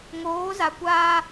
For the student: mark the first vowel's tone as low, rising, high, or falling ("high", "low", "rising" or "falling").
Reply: rising